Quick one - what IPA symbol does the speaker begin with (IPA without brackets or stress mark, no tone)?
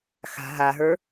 x